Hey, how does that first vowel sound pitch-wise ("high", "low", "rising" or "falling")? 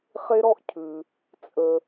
high